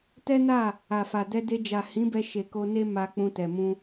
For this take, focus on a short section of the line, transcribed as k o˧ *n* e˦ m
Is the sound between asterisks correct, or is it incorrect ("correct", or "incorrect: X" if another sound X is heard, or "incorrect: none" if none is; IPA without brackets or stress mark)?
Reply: correct